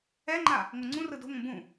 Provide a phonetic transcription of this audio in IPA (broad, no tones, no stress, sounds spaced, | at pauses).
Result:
ɛ ŋ͡ǃ a | ŋʷ ɤ ŋ͡ǀ ũ r ɯ d o̤ ŋʷ ɛ̃ b ũ